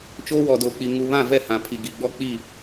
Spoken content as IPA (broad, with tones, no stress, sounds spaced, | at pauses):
t͡ʃ oː˦ w ɔ˨ d oː˨ k͡p i˨ ŋ u˨ β ã˦˨ v ɛ˦˨ h ã˨ pʰ i˨ ɡ i˨ ɡ͡b ɔ˦ k͡p i˦˨